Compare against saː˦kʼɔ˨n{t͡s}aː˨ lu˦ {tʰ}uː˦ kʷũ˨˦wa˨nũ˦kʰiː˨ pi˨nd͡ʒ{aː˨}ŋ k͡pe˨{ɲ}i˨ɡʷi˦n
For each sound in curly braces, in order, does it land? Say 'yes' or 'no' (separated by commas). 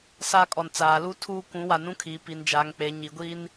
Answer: yes, yes, yes, yes